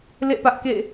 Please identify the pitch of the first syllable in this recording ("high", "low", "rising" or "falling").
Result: falling